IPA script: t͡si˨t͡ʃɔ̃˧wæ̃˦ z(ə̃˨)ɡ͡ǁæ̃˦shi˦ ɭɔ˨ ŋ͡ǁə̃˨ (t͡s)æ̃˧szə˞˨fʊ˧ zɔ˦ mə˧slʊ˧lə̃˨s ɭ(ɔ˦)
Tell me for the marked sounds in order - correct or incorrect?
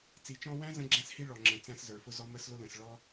incorrect, correct, correct

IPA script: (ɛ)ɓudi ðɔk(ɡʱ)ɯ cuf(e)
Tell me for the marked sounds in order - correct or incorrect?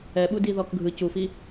correct, correct, incorrect

